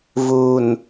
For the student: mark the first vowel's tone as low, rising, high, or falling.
low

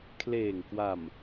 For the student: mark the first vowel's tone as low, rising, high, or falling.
low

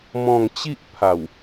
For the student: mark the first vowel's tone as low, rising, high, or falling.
falling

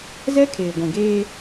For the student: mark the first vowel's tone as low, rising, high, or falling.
high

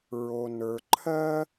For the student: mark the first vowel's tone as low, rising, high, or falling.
low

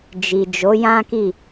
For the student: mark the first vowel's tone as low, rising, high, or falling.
low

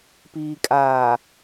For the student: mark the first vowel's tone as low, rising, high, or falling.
low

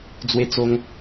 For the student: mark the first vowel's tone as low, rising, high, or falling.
high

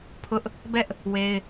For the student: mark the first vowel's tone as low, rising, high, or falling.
high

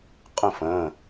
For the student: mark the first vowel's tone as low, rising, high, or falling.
falling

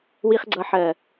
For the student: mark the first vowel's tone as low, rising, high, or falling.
low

